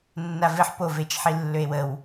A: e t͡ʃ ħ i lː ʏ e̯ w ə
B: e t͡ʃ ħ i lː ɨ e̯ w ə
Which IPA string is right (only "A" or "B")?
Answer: A